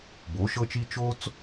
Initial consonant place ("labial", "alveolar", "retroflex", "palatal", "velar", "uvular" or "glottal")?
labial